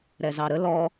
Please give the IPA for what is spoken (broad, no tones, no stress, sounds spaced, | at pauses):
ɾ ɛ z ɑ ɾ ə l ɔ